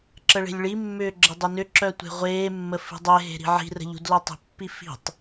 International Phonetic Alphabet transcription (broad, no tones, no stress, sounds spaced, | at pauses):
ǁ ə ɭ e̤ lʲ ɭ i mː ʏː ɡ͡ǁ ə dˤ ʏ n ʏ ǁ œ tʷ e̤ ʁʷ eː mː ə f i̤ dˤ e ɦ e̤ ɾ i̤ ʕ i̤ r ə̤ ʎ ṳ d l œ tˤ ə̤ pː i f i̤ tˤ